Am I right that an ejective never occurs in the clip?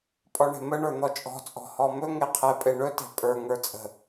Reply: no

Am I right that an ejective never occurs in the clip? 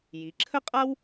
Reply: no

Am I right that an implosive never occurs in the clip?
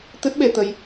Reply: no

